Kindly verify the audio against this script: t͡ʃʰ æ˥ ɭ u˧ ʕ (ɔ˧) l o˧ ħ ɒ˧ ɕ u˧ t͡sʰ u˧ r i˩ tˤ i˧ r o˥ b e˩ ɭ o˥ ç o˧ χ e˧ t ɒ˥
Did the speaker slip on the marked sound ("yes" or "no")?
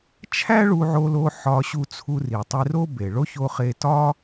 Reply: yes